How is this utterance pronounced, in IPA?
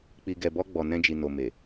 k͡p i˨ ɡ ɛ˨ b ɔ˧ ɡ͡b ɔ˨ n ɛ̃˧ d͡ʒ i˨ n o˨ m e˨

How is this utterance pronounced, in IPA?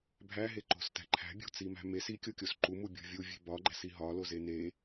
bʱ æ ɦ e ǃ o̤ s t æ̤ ǃʰ æ̤ bʲ o̤ t͡s i m æ̤ m e s i kʲ o kʲ o s ǃ u m u bʲ o̤ vʲ u vʲ e̤ b ɒ ɡ͡ǃ æ̤ s i ɦ ɒ l o z e n e

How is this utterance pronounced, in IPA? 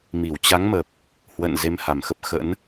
m i˧˩ w t͡ɕ a˨˦ ŋ m ə˨˩ p̚ | h w ə̰˧˨ n z e˧ m h a˨˩ m x ə˦˥ p̚ x ə̰˧˥ n

